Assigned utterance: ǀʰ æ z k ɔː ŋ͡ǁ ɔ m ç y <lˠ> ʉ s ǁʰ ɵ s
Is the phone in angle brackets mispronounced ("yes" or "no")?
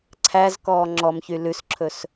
yes